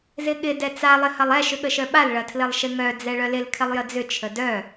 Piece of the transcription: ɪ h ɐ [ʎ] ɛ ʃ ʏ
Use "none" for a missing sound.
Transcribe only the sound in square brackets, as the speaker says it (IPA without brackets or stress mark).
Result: lˠ